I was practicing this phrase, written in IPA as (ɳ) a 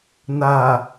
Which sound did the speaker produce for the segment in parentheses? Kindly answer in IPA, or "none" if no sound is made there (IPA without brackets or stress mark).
n